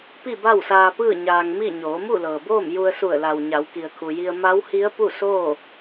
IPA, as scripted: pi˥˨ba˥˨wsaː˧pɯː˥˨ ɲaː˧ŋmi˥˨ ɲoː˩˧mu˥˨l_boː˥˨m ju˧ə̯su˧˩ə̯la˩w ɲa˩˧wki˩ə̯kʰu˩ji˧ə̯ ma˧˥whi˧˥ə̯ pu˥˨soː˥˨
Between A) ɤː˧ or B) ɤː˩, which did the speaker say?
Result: B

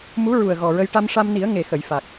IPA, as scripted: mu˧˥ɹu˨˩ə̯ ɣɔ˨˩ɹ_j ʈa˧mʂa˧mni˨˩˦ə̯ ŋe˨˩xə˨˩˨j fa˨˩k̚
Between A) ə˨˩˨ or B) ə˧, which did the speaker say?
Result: B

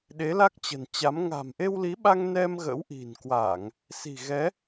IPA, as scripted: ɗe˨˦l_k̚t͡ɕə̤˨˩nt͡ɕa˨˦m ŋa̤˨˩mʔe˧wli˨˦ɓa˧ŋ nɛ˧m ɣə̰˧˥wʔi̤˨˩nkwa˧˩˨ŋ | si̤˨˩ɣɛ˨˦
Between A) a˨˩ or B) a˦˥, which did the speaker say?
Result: B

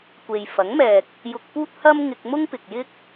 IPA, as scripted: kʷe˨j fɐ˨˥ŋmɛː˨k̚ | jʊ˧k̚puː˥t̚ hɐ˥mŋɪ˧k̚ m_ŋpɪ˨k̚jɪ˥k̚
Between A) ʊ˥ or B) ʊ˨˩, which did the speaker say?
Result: A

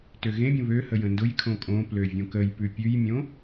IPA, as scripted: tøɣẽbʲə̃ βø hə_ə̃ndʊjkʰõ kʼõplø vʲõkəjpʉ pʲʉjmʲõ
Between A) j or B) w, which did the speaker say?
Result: A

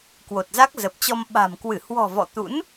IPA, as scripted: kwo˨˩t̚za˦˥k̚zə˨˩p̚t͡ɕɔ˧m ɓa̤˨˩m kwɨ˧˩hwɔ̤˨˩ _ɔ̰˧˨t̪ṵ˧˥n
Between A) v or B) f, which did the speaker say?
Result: A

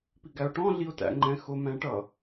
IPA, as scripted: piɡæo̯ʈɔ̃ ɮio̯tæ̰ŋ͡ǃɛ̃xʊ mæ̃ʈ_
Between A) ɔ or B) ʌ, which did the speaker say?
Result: B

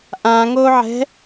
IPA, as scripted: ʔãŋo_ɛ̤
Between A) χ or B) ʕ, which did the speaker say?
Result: B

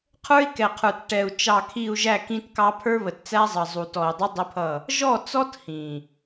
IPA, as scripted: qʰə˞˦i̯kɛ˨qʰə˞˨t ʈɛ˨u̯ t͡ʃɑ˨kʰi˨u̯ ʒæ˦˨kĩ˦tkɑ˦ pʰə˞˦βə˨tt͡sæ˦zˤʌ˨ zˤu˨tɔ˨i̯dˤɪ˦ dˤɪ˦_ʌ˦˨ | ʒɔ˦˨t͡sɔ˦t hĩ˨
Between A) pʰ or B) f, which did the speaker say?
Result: A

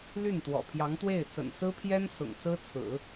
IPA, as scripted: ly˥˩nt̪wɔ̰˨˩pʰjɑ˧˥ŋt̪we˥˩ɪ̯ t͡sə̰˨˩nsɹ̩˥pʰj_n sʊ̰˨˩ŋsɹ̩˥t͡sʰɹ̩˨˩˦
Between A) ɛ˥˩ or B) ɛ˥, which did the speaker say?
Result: B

